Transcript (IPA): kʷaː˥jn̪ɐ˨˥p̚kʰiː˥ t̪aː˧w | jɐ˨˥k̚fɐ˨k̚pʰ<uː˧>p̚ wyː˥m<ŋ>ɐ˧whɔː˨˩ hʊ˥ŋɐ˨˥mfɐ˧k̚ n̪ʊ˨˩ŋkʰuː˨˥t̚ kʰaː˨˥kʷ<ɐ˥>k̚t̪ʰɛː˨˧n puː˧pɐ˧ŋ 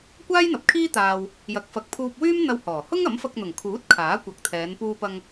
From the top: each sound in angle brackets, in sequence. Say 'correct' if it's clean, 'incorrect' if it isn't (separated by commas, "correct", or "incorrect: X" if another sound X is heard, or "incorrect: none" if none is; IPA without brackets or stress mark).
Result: correct, incorrect: n̪, incorrect: ɐ˨˥